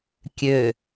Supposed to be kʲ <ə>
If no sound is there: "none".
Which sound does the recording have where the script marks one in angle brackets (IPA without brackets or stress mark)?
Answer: ø